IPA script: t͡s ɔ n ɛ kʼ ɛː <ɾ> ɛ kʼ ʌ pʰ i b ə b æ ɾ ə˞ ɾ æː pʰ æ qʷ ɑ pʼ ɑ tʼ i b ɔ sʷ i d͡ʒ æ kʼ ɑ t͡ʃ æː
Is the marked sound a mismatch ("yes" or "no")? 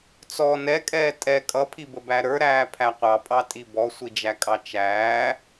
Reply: yes